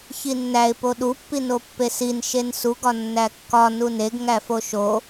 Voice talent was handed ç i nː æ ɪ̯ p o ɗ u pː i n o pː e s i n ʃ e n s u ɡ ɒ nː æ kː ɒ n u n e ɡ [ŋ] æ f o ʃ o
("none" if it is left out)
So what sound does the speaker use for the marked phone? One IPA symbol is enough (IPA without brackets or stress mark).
ŋ